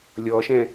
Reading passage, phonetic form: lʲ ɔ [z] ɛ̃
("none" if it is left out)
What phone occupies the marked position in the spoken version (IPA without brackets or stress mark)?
ʃ